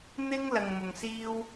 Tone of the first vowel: high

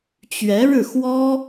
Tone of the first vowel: rising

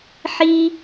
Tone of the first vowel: high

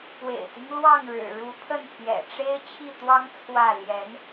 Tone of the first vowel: low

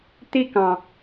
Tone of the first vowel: high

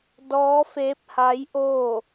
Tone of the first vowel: rising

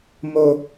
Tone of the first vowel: high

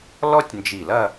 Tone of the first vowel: high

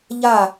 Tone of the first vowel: falling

